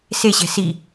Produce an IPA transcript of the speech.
seɕɛ̤ si

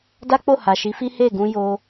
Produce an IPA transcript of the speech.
da˦k͡po˦˨ ha˨ʃi˨˦fi˦ he˦˨ɡũ˧jo˧

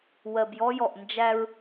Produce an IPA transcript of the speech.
wɜ˨bjɔ˦jɔ˨ʔ nd͡ʒæ˦ɹ

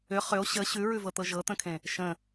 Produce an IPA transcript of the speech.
ʏ χʏo̯ ɕə ɕʉɹʉvɤt̪ɤ ʒɤt̪ə̃kʰẽ | ʃə̃

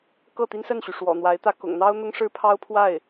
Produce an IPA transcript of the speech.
kɤ˥˩t̪i˥nsə˥˩nɕy˩ ʂwɔ̰˨˩n̪wa˧˥ɪ̯t̪ä˥˩ kʊ̰˨˩ŋ n̪ɑ˥ʊ̯ n̪ʊ˥ŋʂɻ̩˥pʰɑ˥ʊ̯pʰwa˥˩ɪ̯

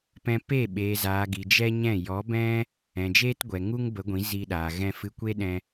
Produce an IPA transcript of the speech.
pɛ̃˧ pe˦˨ ɓeː˨zaː˨ ɡi˨d͡ʒɛ˦ɲɛ̃˦˨ jɔ˨˦bɛ̃˦ | ɛ̃˨d͡ʒeː˦tɡʷɛ˨ ŋu˦ŋbə˨˦ɡʷĩ˨˦ zi˧ɗaː˨ ɣɛ̃˧fɨ˧kʷe˦ɗɛ̃˧

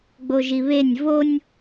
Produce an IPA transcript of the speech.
ɡ͡boʒiβenʲ vonʲ

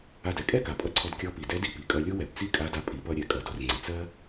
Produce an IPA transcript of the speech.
a˧dɛ˩˧ kʼɛ˥ka˩pʼʌ˧ ǀʰɔ˧dkʲɔ˧˥ pi˩dɛ˧˥di˩˧ pi˩kʼʌ˧lʲo˥ wɛ˩bt͡si˥kʼa˧˥da˧ pʼi˩˧pʌ˧ ɾʲɛ˩ kʼʌ˩ do˩˧rŋ͡ǀi˩ t͡sɜ˥

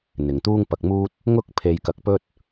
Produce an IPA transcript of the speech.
n̪ɪ˨ŋt̪uː˥ŋpɐ˧k̚muː˥t̚ | ŋʊ˥k̚ pʰe˧jkɐ˧k̚pɵ˥t̚

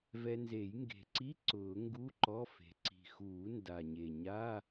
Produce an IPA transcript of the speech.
vɛ˧nze˨˩˦j ŋɡe̤˨˩ǀi˧˥˧ ǀʊː˨˩˦ŋɡu˧˥˧ ǃɔ˧˥˧fe̤˨˩ ǀi̤˨˩xuː˨˩˦ nda˨˩ɲe˨˩ɲa˧˥˧

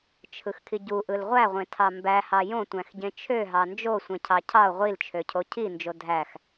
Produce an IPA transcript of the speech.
t͡ʃʰɯxkʰiɟuʔɯl ʁʷæʁʷẽtʰɑ mbæhɑ jõtʷæ̃xɟẽ t͡ʃʰøɦɑ nd͡ʒo sʷẽcʰɑcʰɑo̯ ʁʷilt͡ʃʰøcʰo cʰind͡ʒo dʱæx

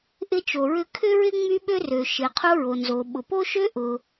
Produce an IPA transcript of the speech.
ʔɪ˥t͡ʃo˩ɹʏ˥ kʰʏ˥ɹɪ˥ ŋ͡my˥ɓø˥rø˩ ʃɪ˩ qʰo˥ɹo˩nzo˩ ɓʊ˩po˥ʃø˥ ʔʊ˩

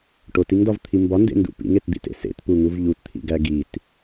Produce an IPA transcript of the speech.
ʈotiŋdɒvt̪ʰi mbɒndḛndṵ pḭŋetd̪ḭtḛ sḛtpuŋuv ʎutt̪ʰḭɡæ ɡit

